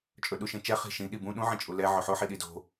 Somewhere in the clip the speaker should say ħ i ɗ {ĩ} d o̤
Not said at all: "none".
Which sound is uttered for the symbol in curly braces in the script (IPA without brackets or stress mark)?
i